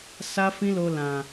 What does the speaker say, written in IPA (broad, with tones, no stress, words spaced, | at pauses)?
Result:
sa˦fĩ˦lo˧ lã˨